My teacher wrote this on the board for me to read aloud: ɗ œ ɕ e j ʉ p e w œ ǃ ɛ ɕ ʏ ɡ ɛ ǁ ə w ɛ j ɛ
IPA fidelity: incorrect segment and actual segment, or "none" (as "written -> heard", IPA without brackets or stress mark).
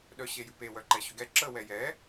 none